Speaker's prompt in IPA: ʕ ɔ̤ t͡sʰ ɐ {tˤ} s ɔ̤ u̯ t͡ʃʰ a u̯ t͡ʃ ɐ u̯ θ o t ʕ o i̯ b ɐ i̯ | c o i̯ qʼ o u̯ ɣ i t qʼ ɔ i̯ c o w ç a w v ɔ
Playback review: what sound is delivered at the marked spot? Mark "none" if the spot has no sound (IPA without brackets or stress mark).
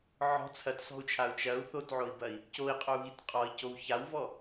t